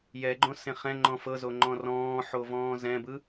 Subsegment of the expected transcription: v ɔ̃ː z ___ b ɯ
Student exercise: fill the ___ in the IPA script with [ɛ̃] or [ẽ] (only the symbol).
ɛ̃